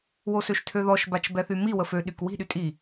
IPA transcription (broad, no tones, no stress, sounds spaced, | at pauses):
w o s ø ʃ tʰ ø ð ɔ ʃ b a t͡ʃ b ɛ θ y m i w ə f ø ɗ y k w i̤ ɗ y tʼ i